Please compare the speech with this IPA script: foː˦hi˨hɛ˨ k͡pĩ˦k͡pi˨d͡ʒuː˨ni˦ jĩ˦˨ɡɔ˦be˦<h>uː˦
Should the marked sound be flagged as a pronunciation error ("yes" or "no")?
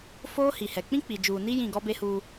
no